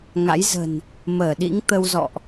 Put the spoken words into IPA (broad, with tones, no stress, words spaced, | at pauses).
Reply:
ŋa̰˧˥jzə̤˨˩n | məː˧˩ ɗḭ˧˥ŋt̪ə˧wzɔ̰˧˨ʔ